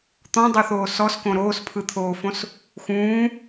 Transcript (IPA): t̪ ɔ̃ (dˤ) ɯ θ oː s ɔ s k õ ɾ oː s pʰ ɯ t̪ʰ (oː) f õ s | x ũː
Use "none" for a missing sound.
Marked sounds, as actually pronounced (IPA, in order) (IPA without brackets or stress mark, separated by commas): dˤ, oː